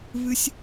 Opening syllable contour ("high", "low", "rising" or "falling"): high